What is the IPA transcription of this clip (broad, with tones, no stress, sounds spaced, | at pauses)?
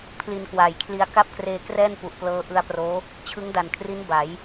pʰ l i˧ n k w aː˨˩ j kʰ l i˧ a̯ k a˥˩ p̚ k r eː˧ k r ɛː˥˩ n p u˨˩ ʔ p l ɤː˦˥ ʔ ɯ˧ a̯ p r oː˦˥ | t͡ɕʰ ɯ˦˥ ŋ d a˨˩ n kʰ r i˦˥ n b a˩˦ j